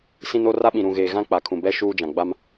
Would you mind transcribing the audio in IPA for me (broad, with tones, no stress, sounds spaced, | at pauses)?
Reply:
s ĩ˦ n o˦ r a˦ ɓ ĩ˨ ɾ ũ˨ ɣ eː˨ ɣ ã˦ k͡p a˨ kʰ ũ˨ b ɛ˦ ʃ uː˦ d͡ʒ ã˨ ɡ͡b a˦ m